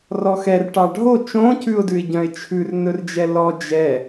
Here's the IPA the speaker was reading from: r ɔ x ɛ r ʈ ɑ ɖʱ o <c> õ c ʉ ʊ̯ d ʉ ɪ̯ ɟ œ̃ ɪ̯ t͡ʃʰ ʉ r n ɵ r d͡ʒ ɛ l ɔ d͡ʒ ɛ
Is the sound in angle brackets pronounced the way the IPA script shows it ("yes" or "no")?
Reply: no